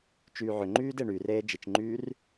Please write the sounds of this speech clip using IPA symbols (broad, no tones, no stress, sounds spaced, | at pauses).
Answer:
t͡ʃ yː ʕ ʏ ŋ͡ǃ yː d e ɳ y r eː d͡ʒ i t͡ʃ ŋ͡ǃ yː r